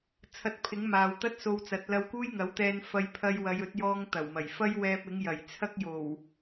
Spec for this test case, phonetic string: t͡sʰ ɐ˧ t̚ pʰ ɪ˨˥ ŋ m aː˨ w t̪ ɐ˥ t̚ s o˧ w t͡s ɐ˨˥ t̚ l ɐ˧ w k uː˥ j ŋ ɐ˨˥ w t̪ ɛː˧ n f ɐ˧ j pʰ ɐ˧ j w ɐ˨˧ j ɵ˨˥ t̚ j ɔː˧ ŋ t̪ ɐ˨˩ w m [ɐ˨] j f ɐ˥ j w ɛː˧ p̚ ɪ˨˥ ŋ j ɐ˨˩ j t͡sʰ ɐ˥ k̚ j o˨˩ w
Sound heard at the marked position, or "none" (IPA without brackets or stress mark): ɐ˨˩